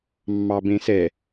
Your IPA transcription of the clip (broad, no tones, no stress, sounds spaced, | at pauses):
mː ɑ b ẽ s ɛ